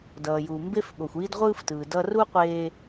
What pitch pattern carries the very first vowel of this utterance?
low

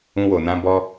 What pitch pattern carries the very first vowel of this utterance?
high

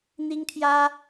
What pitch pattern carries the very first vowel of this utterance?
high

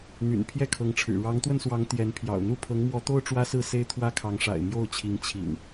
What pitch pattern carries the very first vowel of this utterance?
low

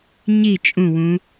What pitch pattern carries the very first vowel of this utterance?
falling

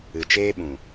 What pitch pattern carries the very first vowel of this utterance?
low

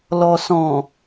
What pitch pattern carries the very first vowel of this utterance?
low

